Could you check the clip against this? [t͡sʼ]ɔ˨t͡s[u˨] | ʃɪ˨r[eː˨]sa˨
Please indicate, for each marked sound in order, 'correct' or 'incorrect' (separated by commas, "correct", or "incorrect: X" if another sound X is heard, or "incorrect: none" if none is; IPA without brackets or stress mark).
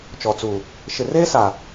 incorrect: t͡ʃ, correct, incorrect: eː˦